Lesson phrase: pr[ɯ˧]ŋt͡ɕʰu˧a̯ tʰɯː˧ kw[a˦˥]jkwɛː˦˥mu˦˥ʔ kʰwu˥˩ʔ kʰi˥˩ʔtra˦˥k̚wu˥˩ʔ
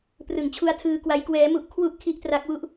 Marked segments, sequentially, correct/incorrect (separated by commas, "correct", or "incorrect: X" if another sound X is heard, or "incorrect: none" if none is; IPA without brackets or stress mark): incorrect: ɯ˩˦, correct